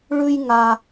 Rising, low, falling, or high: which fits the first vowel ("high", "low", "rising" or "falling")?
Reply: high